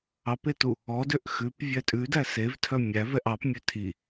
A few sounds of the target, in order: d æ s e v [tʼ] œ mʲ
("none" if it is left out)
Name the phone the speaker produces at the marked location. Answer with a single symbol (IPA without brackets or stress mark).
tʰ